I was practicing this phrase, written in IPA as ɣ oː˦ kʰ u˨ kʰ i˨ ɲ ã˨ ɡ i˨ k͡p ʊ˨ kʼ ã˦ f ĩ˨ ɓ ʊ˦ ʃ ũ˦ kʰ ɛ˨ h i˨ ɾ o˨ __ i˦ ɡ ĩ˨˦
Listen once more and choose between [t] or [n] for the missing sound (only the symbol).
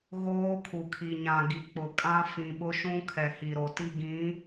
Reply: t